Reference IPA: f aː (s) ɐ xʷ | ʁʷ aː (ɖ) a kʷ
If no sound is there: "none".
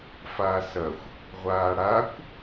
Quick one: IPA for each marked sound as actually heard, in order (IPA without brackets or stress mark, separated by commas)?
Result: s, ɽ